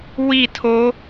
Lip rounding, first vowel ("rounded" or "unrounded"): unrounded